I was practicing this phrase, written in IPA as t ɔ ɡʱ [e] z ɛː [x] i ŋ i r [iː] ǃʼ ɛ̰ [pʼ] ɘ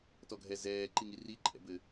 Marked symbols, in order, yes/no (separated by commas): no, no, no, no